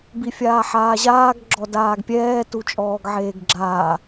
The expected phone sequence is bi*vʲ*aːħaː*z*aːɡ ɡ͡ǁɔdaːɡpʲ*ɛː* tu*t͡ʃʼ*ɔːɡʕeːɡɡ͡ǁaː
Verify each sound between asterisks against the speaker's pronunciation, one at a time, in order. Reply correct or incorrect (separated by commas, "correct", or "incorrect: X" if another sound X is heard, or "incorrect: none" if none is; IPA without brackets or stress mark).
incorrect: fʲ, incorrect: ʑ, correct, correct